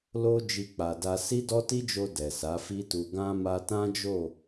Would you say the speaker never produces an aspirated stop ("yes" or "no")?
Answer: yes